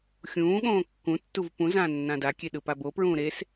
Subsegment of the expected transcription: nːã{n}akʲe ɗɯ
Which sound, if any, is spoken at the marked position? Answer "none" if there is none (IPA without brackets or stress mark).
d